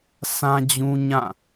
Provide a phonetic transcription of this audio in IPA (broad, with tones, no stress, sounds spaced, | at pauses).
sʰ ã˦ d͡ʑ ũ˦ ɲ ã˦˨